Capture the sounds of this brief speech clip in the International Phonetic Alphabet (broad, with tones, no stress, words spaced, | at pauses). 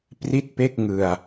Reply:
pri˥˩t̚pe˥˩k̚ ŋɯ˧a̯